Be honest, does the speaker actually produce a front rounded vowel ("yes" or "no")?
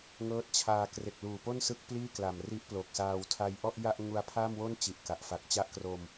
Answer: no